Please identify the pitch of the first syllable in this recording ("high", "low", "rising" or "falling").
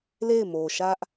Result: falling